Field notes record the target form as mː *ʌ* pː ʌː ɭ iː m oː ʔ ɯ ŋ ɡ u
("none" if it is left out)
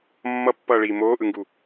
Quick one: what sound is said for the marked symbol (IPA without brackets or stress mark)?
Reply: ʌ